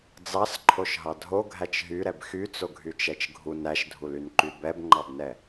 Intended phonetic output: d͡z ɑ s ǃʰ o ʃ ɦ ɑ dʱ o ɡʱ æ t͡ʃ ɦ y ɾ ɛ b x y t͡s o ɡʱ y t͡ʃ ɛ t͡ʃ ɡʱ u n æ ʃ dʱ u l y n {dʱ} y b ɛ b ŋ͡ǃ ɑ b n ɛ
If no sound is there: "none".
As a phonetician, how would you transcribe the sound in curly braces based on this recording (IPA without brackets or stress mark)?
ǃ